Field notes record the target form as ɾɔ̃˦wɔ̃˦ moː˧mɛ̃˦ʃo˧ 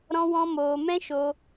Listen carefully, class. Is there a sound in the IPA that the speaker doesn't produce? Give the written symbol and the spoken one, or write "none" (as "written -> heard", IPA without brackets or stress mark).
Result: none